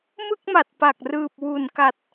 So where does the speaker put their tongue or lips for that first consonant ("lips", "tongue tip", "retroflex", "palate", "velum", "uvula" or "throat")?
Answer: lips